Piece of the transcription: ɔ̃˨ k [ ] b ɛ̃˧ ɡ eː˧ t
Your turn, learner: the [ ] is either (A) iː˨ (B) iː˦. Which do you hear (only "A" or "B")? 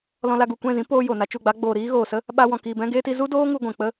A